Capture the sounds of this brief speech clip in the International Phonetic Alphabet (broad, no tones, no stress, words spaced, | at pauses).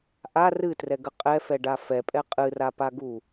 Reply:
ʔa rɨtrɛɡə qʼɛfɛɖa fɛpʼɛ qʼɨrapaɡu